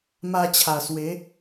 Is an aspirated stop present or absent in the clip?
present